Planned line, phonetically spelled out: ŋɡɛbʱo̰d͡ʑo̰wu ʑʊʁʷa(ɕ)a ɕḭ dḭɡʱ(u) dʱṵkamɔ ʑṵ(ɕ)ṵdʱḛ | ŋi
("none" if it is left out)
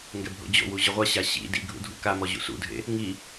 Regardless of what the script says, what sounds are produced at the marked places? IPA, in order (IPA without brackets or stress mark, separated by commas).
ɕ, ṵ, s